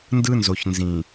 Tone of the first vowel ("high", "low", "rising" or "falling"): high